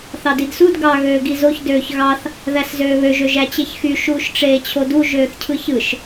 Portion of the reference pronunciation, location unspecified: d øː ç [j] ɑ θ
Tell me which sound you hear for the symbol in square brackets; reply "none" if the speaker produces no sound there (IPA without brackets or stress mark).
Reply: ɣ